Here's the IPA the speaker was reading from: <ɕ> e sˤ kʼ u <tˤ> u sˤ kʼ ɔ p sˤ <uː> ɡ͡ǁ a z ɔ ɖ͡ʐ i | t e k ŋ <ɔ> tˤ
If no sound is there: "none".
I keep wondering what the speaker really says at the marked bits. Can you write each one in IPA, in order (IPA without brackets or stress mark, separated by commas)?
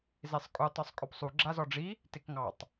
z, tˤ, u, ɑ